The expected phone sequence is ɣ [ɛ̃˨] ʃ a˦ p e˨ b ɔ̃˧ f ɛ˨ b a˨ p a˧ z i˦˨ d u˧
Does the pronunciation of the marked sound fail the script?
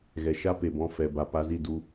yes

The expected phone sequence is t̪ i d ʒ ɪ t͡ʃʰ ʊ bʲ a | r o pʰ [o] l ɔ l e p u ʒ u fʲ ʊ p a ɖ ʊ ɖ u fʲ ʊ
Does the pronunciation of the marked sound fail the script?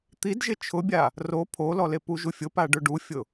no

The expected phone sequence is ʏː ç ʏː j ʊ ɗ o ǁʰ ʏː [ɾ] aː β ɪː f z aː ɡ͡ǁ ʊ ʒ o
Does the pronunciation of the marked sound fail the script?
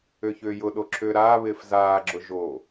no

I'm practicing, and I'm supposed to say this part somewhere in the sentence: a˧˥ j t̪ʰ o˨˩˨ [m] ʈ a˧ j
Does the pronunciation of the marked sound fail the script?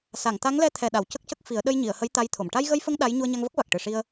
no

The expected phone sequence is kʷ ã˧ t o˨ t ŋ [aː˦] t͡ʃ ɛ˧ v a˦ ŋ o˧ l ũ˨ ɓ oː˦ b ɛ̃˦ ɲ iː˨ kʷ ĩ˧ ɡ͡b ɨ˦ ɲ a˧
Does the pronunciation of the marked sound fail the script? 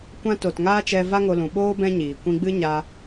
no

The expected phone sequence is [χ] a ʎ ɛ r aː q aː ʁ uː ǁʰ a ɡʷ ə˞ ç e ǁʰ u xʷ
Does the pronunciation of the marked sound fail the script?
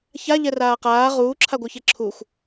yes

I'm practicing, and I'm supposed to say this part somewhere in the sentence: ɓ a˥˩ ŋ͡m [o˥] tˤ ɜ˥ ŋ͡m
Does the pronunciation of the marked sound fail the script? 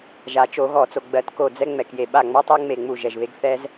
yes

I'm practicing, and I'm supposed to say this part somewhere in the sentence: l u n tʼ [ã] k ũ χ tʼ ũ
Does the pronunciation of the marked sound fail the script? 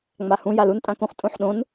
no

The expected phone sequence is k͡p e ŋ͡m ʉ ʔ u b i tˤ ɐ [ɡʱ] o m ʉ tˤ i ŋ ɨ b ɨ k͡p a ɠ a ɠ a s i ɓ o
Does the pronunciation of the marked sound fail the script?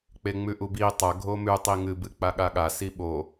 no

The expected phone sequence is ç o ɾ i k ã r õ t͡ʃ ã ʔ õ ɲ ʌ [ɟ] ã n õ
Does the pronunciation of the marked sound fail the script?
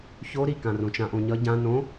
no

